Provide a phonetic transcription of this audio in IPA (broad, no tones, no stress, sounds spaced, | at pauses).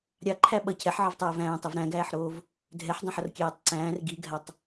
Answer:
ɾʲ ɑ ǃʰ æ ɓ ʌ cʰ ɛ ħ ʕ ʌ v tˤ æː v æ̃ː tˤ i v ɾ æ̃ ɡ æː ħ ɾ oː v | dʱ ɛ ħ dˤ ã ħ ʌ r kʲ æː tˤ ǀ æ̃ː r ɡ i ɡʱ a tˤ